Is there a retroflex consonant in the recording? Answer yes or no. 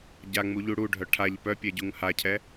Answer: yes